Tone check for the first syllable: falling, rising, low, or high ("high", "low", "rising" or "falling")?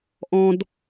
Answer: high